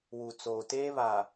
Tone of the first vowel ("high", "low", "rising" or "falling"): low